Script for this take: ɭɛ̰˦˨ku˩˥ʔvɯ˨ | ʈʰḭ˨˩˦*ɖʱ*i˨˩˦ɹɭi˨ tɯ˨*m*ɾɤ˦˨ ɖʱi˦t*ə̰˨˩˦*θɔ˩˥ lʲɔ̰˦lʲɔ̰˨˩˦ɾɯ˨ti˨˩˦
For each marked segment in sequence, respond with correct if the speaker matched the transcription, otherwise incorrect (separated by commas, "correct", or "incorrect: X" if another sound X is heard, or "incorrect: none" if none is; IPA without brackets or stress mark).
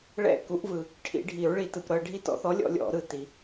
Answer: correct, incorrect: p, incorrect: ɔ̰˨˩˦